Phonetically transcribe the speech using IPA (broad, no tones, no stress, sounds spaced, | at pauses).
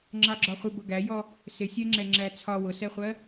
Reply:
ŋ͡ǁ ɑ ɡ͡ǁ ɒ χʷ ɪ b ʊ ɡ æ j ɔ | s ɪ sʲ ɜ ŋ͡ǁ ɛ ŋ͡ǁ æ t͡sʰ ɒ w ʊ s ɛ χʷ ɜ